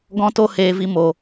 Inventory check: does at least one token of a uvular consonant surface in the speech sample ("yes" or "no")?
no